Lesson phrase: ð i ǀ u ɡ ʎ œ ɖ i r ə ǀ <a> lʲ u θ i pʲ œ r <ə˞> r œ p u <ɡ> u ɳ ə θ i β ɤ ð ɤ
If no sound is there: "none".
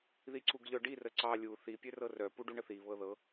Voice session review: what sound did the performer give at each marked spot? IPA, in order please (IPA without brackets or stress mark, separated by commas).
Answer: ɑ, ɤ, ɖ